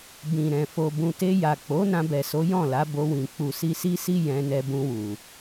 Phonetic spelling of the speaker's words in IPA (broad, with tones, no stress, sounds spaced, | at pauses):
b ĩ˨ ɾ ɛ̃˨ f o˨ b ũ˨ t e˧ j a˨ k͡p o˨˦ n ã˧ b ɛ˨ s o˨˦ j ɔ̃˦˨ l a˨˦ b o˧ w ĩ˨ k͡p u˨ s i˧ s i˦ s i˦ j ɛ̃˧ n ɛ˧ b ũ˧ w u˨